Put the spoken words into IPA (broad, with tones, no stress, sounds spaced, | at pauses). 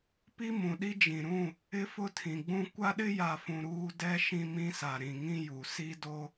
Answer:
p i˦ m ũ˨ ɗ i˦ d͡ʒ ĩ˨ ɾ ũ˦˨ | ɪ˦ f ʊ˦ tʰ ĩ˨ ɡ͡b ũ˦ kʷ a˦ ɗ ɪ˦ j a˨ f ũ˨ ɾ uː˦ d ɛ˦ ʃ ĩ˦ m ĩ˦ s a˨ ɾ ĩ˨ ŋ ĩ˦ j u˨ s i˦ d o˦